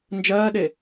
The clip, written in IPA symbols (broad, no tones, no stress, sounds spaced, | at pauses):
n d͡ʒ ɜː ɗ e